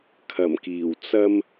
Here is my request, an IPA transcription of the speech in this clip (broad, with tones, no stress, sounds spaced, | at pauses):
kʰ ɐ˨˩ m k iː˨˩ w t͡s ɐ˧ m